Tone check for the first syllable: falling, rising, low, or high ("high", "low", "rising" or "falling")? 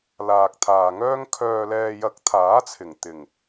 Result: low